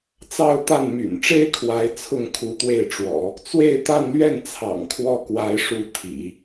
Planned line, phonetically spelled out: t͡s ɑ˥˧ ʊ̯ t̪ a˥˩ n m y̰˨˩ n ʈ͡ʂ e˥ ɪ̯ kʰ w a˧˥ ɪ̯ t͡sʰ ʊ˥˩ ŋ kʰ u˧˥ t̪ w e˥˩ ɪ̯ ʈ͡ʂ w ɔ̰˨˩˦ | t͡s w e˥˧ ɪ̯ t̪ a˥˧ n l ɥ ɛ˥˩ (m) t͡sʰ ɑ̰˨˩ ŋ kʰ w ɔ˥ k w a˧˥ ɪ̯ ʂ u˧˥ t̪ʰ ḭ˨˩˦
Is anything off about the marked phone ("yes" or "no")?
yes